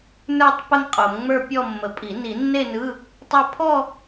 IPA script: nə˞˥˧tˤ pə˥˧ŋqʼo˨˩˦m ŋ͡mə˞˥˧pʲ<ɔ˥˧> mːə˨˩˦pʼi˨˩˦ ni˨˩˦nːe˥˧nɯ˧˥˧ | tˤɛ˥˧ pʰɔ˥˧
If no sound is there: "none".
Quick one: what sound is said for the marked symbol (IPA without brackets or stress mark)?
ɔ˥˧